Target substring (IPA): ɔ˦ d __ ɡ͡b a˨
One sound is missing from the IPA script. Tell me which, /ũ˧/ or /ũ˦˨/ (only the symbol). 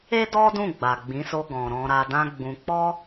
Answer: ũ˦˨